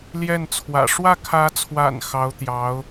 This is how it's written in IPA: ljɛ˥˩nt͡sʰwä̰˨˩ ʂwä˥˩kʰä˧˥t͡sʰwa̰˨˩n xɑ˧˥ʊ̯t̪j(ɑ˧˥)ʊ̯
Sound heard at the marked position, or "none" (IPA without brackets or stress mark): ɑ˧˥